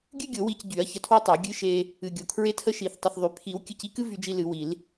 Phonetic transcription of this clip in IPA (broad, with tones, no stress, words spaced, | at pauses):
ɡʲɨ˥ɡʲo˨˩˦ wi˧cɟy˨˩˦ɐ̯ çə˧tʰwə˥tˤo˨˩˦ ɡʲɨ˧ʃe˧ | ɨ˧ɡʲo˧ kʰɹe˥tʰə˥ʃi˨˩˦θ tˤə˧θðˤy˨˩˦ pʰi˨˩˦w kʲɨ˧ci˥kɨ˥ vy˥d͡ʒi˥ lɨ˨˩˦wi˨˩˦l